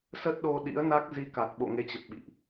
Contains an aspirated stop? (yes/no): no